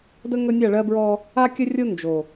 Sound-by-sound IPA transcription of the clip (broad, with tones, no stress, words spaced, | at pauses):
də˦ ŋɵ˦ nʲa˦˨ɭɜ˦bɹɔ˦ | a˦kʲə˦rʲo˦ nd͡ʒo˨